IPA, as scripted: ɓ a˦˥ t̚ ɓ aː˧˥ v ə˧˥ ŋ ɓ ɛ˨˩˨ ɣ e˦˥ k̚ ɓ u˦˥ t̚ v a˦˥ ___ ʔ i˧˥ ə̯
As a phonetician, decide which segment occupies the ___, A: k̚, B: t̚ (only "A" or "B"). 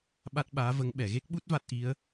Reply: B